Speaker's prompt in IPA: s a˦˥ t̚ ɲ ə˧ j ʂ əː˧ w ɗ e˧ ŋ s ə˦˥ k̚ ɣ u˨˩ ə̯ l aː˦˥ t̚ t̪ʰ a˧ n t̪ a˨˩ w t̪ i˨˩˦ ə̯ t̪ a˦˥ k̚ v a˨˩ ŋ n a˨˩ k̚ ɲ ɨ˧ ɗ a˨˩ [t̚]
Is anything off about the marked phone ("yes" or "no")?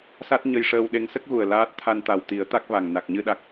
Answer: yes